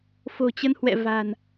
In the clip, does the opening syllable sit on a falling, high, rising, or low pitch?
low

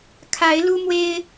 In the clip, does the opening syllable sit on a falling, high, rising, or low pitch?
rising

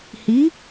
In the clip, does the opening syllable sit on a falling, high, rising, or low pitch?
rising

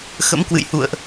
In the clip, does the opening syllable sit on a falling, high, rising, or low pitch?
rising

